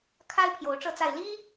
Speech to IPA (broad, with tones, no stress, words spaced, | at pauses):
kʰa˦ɪ̯ pʰjo˨˦ʊ̯ʈ͡ʂɤ˥˨t͡sa˥˨ɪ̯ li˦